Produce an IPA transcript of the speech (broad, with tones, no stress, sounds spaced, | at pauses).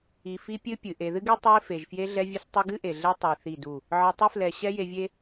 i˨ f i˦ pʲ ɨ˦ pʲ ɨ˨ ʔ e˨ ð ɨ˦ ɡ e˦ tˤ e˦ f e˨ ʒ f j e˦ ɮ ɛ˦ vʲ ɨ˦ s tˤ i˦ ɡ ɨ˦ ʔ e˨ ɮ ɛ˦ tˤ i˨ θ i˦˨ d u˦˨ | ʕ ɨ˨ tˤ ɨ˦ f l ɛ˨ ɕ ɛ˦ j e˦ vʲ e˦